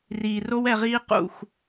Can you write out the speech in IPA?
riː˨ro˦w ɛ˧ʁiː˦ qṵ˦˨x

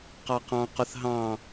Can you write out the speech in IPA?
qɑqɑ̃ qʊθɦɑ̃

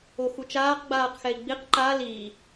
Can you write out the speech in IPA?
oxut͡ʃaːq ɡ͡baːqxɛi̯ɡ͡biq ǃa li

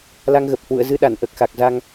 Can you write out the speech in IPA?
la˧ŋɣə˨˩p̚hwṵ˧˨ə̯ zɨ˧ɗa˧˩nʔəː˨˩k̚ xa˨˩k̚za˧ŋ

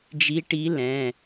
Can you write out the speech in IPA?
d͡ʒi˧˥ʈi˧˥lɛ̃˩˧˩

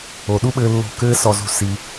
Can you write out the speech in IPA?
o˨ɗu˦ɓɘː˧ lːo̤˦˨ kɘː˦sɔ˧zṳ˧ si˧

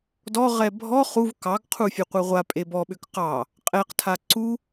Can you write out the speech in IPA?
dɔ ʁɛbʱɔ χuv kɑɡ qʰufʲɨqʷɨʁʷa pʼebɔɓʏk qɑ | qʼɛqtʰa ǀu

